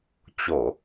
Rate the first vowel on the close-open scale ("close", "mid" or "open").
mid